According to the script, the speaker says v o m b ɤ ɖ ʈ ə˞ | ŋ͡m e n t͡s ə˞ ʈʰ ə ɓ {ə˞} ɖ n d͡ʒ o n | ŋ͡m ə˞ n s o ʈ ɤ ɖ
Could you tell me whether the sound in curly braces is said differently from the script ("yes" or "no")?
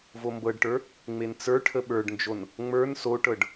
no